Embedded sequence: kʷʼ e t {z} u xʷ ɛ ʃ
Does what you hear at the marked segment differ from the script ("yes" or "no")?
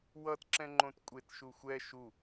yes